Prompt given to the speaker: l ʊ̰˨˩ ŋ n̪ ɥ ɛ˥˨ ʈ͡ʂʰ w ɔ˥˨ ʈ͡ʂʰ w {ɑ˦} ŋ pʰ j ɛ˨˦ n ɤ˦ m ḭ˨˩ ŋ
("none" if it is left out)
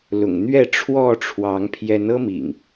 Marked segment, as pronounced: ɑ˨˦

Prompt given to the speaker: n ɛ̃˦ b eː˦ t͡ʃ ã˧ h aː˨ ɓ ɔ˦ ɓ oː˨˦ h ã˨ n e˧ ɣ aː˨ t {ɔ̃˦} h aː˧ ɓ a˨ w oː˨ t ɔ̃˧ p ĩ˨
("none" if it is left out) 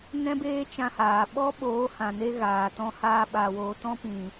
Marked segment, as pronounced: ɔ̃˧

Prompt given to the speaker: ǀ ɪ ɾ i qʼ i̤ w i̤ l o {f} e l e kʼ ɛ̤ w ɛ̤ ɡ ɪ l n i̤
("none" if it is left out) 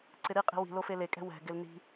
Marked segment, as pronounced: f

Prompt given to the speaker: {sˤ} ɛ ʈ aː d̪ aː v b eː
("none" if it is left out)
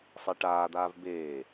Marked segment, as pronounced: sˤ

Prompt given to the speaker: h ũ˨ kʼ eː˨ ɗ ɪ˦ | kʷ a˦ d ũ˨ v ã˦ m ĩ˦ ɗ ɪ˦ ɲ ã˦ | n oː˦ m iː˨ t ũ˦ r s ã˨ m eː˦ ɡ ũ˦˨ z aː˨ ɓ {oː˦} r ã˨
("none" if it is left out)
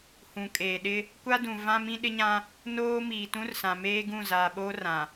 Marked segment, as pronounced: oː˦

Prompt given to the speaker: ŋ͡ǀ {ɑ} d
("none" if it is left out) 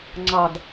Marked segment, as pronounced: ɑ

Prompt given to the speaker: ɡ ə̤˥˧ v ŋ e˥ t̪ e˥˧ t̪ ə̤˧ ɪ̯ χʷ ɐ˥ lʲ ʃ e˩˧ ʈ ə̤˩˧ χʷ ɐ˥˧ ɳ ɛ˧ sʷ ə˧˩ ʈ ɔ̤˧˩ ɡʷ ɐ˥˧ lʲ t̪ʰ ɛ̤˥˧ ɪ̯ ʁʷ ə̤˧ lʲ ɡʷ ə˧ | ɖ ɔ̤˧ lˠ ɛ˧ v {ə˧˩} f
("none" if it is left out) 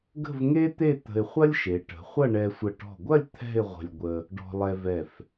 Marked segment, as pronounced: ɛ˧˩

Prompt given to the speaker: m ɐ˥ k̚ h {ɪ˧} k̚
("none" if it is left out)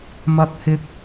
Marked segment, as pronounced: ɪ˥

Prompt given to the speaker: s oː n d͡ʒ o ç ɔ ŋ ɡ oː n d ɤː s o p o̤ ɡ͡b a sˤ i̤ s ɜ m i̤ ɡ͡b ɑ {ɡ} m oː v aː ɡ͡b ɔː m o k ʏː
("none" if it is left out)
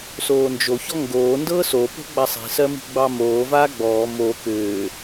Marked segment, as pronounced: none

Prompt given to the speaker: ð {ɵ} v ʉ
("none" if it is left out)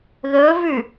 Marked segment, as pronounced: ɵ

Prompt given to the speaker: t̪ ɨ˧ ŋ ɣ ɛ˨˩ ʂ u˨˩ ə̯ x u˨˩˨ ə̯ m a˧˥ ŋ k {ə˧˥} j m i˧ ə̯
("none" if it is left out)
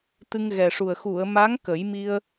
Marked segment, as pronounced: ə˨˩˦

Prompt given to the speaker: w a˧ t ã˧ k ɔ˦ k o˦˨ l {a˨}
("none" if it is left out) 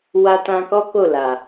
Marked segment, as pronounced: a˨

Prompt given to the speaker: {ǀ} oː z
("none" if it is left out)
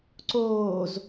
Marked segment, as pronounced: ǀ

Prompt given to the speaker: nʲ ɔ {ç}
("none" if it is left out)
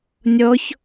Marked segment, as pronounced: ç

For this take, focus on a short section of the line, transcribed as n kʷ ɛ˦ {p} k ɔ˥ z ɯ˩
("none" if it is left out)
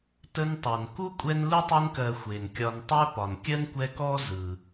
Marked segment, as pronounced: none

